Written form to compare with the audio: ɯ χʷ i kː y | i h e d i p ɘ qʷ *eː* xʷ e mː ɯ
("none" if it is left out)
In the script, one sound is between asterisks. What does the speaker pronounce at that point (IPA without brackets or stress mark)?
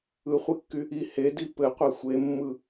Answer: e